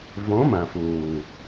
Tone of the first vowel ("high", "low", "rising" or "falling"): rising